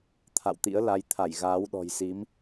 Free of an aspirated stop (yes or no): no